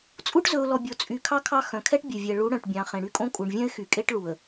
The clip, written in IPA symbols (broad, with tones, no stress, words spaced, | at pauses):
t͡sʼu˦ʈ zɵ˨ʊ̯lɔ˨ bʲo˨t͡sʼy˨ kʰɑ˦kʰɑ˦˨ xœ̃˨kʰɛ˦ʈ bʲe˨vʲɛ˨ ɭu˨˦ ɽœ̃˨ʈbʲɑ̃˨˦χẽ˨ ɽy˦kʼõ˦kʼu˨ɳ vʲœ̃˦ɪ̯ xy˨kʼe˦ʈ ɭu˨ə̯